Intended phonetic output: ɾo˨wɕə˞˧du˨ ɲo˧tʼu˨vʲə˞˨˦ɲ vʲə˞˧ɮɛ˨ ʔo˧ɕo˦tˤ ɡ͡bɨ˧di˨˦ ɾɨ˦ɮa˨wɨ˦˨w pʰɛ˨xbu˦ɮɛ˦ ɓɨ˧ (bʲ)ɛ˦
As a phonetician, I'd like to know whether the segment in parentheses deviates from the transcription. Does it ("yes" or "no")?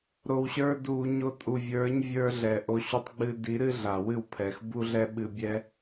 no